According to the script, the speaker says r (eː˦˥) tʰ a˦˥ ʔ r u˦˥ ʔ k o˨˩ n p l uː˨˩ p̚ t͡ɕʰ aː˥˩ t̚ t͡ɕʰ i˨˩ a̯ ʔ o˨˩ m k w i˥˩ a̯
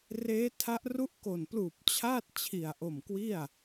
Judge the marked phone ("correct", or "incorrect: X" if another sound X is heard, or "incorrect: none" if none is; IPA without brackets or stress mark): correct